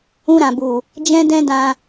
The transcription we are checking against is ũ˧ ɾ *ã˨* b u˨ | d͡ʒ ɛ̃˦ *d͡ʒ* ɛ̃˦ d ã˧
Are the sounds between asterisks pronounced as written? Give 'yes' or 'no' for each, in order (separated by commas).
yes, no